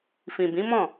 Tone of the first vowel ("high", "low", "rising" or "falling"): low